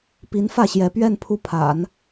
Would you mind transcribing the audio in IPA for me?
p i˧˥ n f ä˥˩ ɕ j ɛ˧˥ p ɥ ɛ˥˧ n pʰ u˥˩ pʰ a̰˨˩˦ n

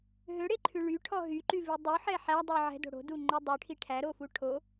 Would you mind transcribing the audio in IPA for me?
ɦ ø ɽ e ǃʰ ʉ ɭ y ʈʰ ɔ ɦ y ǃ y v i dˤ u ħ ɛ ħ æ dˤ ʉ ʕ ɛ̤ d o̤ ɽ o̤ d u ŋ͡ǃ o dˤ ʉ ʈʰ i ʈʰ æ ɾ o f u ʈʰ o

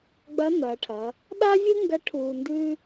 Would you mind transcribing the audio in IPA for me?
ɡ͡b ɐ˧˥ n ɐː˩˧ ʈʰ ɐ˩˧ | ɗ a˥ vʲ ɨ˥ ŋ ɡ ɐ˧˥ ʈʰ uː˧ n d ʉ˥

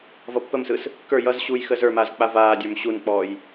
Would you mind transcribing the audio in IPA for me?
v ʌ pː ə m s ɯ s | k ə˞ j ʌ z ɕ uː j x əː z ə˞ m aː z k͡p a v aː dʲ ə˞ m ɕ u n k͡p ɔː j

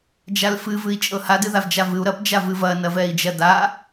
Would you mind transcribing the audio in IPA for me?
d͡ʒ a l f ɨ v ɨ i̯ t͡ʃʼ ɤ h a d ɨ ð a v d͡ʒ a v ɨ u̯ ɾ ɐ p d͡ʒ a v ɨ v ɐ n ɐ v ɛ i̯ d͡ʒ ɐ d a

